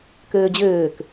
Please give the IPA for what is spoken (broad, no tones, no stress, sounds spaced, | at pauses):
k øː d͡ʑ øː k